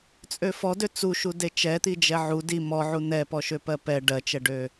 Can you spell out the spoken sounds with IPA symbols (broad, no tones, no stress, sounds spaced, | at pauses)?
t͡sʼ ø f ɔ d ø t͡s u ʃ u d e t͡ʃ ɛ t̪ i d͡ʒ ɛ ʕ u d i m ɔ ʕ u n̪ ɛ p ɔ ʃ ø p ɜ p ɛ ɖ ɜ t͡ʃ ɛ ɖ ø